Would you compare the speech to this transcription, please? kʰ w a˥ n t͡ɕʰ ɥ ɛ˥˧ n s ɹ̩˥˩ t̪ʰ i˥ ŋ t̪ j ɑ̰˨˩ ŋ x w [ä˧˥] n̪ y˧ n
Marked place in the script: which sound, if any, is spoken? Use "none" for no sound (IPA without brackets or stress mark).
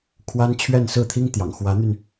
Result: ä˧˥